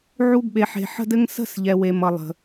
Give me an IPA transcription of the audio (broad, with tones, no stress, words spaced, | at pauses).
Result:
ʕu˧ɡɓe˨ħe̤˨ ħə̤˦dɘ˦ŋ sə̤˦˨s ʎɛ˨we˨mʌ˨lˠə̤˨